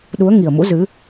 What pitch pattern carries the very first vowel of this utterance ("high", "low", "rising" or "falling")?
rising